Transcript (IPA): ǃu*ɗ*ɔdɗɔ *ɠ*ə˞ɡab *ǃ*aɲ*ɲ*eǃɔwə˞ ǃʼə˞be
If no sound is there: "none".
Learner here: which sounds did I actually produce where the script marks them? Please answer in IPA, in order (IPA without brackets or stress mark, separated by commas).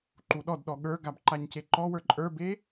ɗ, ɠ, ǃ, c